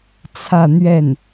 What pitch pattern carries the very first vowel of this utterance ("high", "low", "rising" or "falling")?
falling